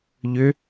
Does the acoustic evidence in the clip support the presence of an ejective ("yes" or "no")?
no